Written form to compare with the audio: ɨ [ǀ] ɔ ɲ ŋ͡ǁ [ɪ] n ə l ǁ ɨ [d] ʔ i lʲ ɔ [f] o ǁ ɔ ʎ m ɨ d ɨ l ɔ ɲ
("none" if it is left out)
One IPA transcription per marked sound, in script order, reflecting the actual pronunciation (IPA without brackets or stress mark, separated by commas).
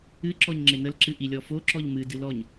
ǁ, ɪ, none, f